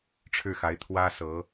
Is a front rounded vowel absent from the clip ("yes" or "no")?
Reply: yes